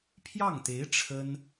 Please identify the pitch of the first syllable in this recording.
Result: falling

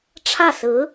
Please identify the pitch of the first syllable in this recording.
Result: falling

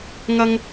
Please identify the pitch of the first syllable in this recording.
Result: high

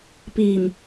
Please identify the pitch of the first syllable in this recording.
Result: low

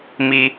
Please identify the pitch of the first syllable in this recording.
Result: high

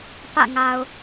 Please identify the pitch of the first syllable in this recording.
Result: falling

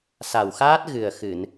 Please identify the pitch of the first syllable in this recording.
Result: low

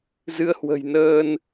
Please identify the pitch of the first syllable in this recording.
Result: rising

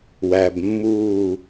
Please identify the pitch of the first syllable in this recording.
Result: low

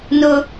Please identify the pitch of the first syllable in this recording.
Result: high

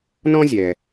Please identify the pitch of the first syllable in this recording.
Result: high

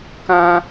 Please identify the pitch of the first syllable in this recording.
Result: high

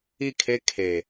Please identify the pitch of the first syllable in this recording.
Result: falling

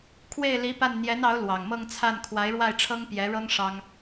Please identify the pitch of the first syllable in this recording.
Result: falling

